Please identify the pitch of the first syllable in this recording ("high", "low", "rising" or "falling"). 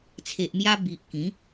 low